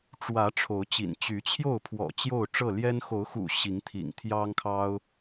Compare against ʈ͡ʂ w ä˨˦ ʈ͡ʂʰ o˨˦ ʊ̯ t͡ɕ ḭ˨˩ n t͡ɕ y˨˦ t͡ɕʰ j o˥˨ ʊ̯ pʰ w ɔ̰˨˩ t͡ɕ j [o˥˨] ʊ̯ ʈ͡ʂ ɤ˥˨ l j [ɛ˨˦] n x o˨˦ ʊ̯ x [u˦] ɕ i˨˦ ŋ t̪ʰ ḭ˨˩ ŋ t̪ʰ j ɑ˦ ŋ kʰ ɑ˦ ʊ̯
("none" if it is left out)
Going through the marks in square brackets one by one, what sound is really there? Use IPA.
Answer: o˥˨, ɛ˦, ṵ˨˩

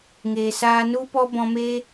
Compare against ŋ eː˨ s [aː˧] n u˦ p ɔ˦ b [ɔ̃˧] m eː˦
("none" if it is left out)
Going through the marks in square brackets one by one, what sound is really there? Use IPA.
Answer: aː˧, ɔ̃˧

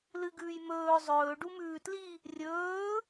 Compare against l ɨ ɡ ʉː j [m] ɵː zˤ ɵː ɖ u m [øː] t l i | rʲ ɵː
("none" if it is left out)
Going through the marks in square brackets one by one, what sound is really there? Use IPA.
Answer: m, ʉː

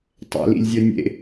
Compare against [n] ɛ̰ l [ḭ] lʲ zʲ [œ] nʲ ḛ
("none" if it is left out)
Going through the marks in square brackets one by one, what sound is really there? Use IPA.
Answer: tˤ, ḭ, œ

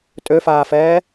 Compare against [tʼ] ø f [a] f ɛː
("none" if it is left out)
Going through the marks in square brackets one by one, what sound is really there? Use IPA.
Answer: tʼ, aː

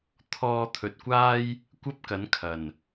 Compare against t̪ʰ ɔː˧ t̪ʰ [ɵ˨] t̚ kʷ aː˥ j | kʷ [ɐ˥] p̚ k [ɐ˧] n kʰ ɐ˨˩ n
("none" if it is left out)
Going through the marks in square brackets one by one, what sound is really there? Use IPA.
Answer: ɵ˨, ɐ˥, ɐ˨˥

